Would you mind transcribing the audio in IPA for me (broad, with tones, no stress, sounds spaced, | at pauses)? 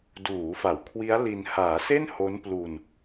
d uː˩˦ f a˩˦ w kʰ w i˦˥ a̯ l i˧ n h aː˩˦ s e˥˩ n h o˦˥ n p l u˧ n